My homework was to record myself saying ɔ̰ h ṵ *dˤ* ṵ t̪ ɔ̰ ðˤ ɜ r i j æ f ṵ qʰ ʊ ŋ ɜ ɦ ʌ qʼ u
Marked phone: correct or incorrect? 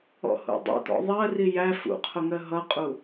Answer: correct